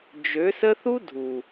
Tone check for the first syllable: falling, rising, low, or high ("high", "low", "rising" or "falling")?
rising